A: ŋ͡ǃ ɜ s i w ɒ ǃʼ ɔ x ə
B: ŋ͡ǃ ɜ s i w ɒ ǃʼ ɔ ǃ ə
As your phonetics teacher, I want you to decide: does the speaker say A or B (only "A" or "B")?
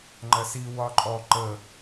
B